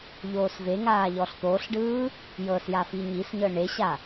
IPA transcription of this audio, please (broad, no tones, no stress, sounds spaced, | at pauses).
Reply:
ʎ oː s v e ŋ aː ʎ ɔ ɬ t̪ oː ɬ ɖ ɯː | j ɤ s j a f i ɲ i s ɲ ɤ ɳ e ɕ a